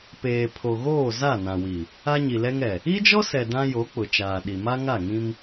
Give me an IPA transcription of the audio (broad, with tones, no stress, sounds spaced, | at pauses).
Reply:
p eː˨ pʰ o˨ ɣ oː˦˨ z a˦˨ n ã˨ w i˨ | a˦ ɲ i˨ l ɛ˦ ŋ ɛ˨ | i˦ d͡ʒ ɔ˦ s ɛ˨ d ã˦ j o˨˦ k͡p ʊ˨ t͡ʃ aː˨ ɗ i˨ m a˦ ŋ a˦˨ ŋ ĩ˦ m